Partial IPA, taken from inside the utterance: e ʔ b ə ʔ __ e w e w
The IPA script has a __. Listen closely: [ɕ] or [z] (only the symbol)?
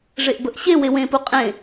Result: ɕ